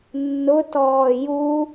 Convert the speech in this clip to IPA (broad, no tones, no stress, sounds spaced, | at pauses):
nː ʊ t ɔː j u